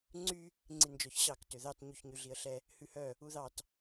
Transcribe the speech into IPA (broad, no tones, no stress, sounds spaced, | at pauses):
ŋ͡ǀ y | ŋ͡ǀ i n d͡ʒ ɔ ç ɕ ɑ k t ø ð ɑ t ɲ ʉ ç ɲ y ɮ i ə̯ ɬ ɛ | h ʉ h œ | u ð ɑ t